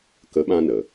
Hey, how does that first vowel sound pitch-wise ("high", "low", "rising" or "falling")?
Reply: rising